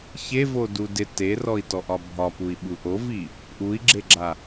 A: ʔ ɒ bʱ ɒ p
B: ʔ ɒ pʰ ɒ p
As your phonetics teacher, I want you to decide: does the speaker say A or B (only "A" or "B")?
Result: A